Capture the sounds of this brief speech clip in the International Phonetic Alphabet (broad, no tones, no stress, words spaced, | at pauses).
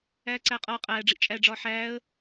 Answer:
æːǀæːqʼɒː qʼæːɖ͡ʐiʔ t͡ʃʼæɖ͡ʐɒː ħæːə̯